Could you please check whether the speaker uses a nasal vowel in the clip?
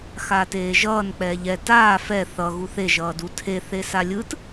no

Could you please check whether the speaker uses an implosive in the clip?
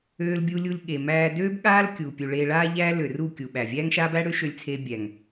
yes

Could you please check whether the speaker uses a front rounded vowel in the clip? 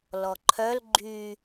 yes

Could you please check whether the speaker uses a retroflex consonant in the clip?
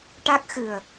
yes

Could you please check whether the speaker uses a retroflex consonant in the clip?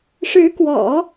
yes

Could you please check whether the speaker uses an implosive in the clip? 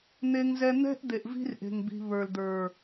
no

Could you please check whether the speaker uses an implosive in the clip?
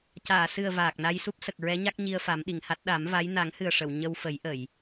yes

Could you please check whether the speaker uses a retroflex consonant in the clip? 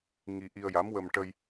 yes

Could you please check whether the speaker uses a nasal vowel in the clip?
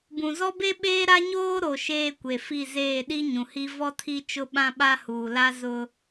yes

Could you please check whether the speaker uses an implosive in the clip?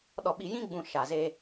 yes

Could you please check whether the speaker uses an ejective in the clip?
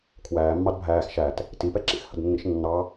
no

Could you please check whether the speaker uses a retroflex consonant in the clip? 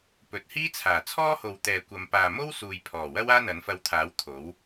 no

